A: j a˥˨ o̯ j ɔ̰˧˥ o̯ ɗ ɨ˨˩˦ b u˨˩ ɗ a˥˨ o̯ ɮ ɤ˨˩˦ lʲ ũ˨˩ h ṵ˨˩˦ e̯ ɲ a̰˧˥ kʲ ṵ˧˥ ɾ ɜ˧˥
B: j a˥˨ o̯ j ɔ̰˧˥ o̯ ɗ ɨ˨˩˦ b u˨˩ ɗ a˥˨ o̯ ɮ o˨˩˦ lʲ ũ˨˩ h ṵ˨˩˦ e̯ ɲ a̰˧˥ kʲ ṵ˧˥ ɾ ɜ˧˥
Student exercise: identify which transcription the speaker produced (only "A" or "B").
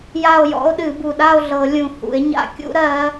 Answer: A